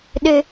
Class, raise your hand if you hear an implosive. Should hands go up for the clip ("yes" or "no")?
yes